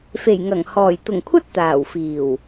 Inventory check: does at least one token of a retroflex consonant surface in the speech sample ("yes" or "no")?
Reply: no